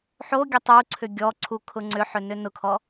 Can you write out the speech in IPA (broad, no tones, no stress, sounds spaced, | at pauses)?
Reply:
ħ o ɡʲ ʊ tˤ u ǀʰ ʏ ɡʲ ɔ ǀʰ u kʰ ʊ ŋ͡ǀ ʏ ħ ʏ n ʏ n ʊ kʰ ɔ